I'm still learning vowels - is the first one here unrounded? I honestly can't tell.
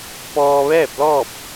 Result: no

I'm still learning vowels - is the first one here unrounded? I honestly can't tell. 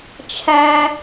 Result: yes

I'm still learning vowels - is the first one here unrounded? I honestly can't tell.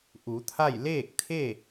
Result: no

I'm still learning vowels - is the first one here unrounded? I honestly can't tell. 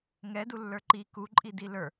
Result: yes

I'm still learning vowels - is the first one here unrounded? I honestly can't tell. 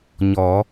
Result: no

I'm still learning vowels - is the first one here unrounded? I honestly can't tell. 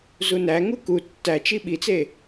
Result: no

